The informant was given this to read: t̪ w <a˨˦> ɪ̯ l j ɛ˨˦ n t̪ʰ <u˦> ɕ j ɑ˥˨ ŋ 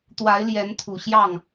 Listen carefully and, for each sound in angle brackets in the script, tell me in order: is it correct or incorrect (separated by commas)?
correct, incorrect